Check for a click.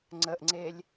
present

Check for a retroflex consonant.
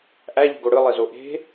present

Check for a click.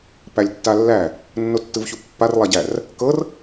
absent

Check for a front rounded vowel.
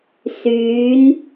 present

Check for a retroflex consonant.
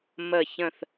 absent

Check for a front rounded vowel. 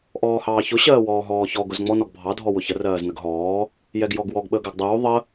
absent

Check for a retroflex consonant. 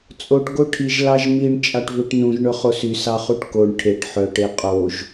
present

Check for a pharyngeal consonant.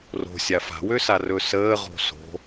absent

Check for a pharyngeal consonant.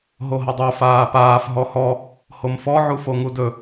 present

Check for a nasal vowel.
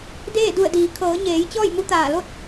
absent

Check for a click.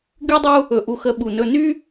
absent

